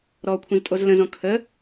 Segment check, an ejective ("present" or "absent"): present